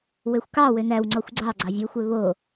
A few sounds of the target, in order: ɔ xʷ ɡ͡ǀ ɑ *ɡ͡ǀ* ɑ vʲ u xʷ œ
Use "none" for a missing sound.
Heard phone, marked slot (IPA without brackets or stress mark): ɡ͡ǀ